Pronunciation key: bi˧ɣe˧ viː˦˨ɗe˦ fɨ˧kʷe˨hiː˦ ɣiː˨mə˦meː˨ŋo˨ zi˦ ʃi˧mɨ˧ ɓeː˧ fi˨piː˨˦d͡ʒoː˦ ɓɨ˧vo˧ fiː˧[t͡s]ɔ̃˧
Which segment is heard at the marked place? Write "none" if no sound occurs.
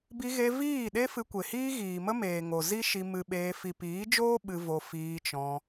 t͡ʃ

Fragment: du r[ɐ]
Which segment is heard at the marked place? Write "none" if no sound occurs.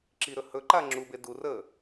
ə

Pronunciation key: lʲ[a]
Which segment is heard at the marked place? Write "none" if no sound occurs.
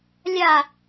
a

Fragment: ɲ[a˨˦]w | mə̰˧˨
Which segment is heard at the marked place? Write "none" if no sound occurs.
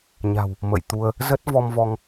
a̤˨˩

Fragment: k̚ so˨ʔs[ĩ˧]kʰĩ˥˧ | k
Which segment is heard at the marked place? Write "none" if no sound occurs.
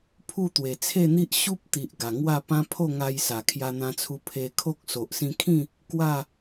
ĩ˧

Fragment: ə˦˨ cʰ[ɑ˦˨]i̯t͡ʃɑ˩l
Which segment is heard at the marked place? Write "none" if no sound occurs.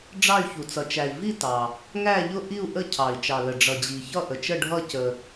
ɑ˩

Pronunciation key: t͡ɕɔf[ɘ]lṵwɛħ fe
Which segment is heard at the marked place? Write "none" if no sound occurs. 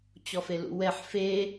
e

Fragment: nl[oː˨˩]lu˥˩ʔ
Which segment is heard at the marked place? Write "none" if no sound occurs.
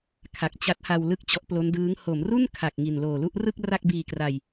oː˨˩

